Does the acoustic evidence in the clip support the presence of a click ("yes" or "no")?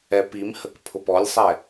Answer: no